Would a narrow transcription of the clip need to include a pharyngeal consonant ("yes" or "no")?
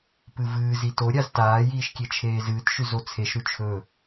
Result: no